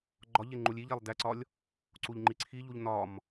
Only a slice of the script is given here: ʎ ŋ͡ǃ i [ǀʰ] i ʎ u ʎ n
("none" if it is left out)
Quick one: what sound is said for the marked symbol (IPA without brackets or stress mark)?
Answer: ǀʰ